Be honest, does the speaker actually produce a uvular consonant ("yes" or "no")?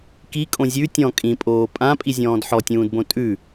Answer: no